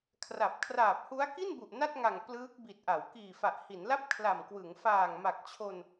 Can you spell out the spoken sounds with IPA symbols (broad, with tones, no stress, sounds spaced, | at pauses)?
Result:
kʰ r a˨˩ p̚ kʰ r aː˨˩ p̚ h u˦˥ a̯ k i˥˩ n b u˨˩ ʔ n a˥˩ t̚ ŋ a˨˩ ŋ p l ɯː˦˥ k̚ b i˨˩ t̚ ʔ a˩˦ w k iː˨˩ f a˨˩ ʔ h i˩˦ n l a˥˩ p̚ kʰ l a˨˩ m k w ɯ˩˦ ŋ f aː˨˩ ŋ m a˨˩ k̚ t͡ɕʰ o˧ n